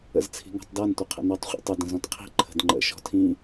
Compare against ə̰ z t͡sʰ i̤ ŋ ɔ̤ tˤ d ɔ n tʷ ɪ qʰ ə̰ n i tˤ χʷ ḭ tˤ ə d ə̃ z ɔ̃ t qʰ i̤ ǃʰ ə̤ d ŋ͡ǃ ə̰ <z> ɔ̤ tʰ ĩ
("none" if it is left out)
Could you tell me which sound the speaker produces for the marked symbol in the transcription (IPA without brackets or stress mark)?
ʃ